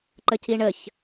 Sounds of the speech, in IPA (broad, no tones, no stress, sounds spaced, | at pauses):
ǃ ə c i ɳ ə ç